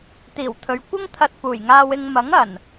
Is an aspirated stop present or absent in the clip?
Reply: present